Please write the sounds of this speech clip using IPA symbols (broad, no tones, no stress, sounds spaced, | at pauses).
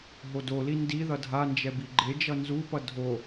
ɦ o d o l i n d i ð ʌ dʱ a n d͡ʒ ɛ b i ɡ͡ǃ e d͡ʒ ʌ n z u p ʌ dʱ o